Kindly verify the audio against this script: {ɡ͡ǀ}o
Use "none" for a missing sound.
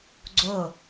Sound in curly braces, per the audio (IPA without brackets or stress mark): ɡ͡ǀ